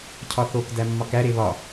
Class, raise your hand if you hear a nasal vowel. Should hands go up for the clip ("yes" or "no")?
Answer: no